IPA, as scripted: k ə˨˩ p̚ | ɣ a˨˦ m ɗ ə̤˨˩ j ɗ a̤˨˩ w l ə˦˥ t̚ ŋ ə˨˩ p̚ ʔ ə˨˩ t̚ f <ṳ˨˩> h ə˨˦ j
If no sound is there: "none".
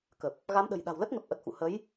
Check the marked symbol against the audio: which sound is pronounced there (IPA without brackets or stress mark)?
ṵ˧˨